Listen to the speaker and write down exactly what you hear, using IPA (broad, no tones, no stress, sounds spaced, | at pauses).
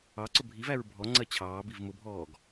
ɑ ǀ ʊ bʱ i v æ ɹ bʱ ɔ ŋ͡ǀ ɜ t͡ɕʰ ɑː b i v m ʊ bʱ ɔː ɡ